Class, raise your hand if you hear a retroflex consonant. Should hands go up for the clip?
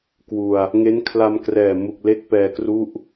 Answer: no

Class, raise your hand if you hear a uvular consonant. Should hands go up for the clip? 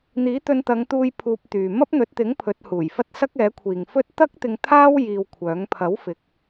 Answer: no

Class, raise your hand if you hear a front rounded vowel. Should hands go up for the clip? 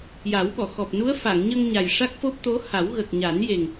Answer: no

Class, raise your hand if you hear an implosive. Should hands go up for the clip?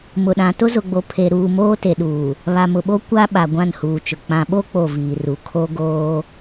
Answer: yes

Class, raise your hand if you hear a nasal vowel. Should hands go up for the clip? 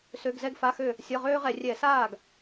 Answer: no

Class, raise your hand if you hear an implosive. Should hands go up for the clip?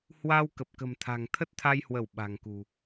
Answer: yes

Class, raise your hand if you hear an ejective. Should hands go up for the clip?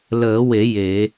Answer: no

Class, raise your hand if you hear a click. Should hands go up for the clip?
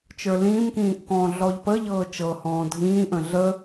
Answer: no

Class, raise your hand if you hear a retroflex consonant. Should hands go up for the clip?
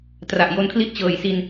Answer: no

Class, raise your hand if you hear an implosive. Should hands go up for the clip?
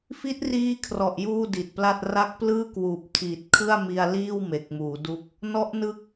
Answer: no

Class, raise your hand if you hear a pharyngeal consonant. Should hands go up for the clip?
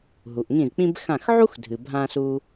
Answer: yes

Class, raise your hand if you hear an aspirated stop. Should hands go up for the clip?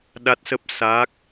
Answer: no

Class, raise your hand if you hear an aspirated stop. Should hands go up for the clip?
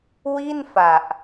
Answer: no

